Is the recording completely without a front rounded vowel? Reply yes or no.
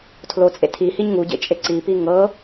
yes